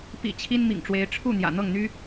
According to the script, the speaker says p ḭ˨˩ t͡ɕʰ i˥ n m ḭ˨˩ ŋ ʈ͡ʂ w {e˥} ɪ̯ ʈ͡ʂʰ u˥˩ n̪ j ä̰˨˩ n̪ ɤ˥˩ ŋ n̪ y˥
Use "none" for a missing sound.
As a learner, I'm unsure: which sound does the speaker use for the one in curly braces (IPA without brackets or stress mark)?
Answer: e˧˥